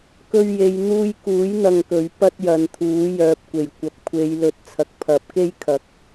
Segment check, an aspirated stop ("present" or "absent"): present